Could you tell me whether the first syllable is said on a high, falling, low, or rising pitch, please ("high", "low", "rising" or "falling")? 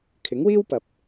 rising